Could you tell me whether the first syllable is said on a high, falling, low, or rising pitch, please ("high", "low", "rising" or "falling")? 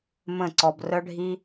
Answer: falling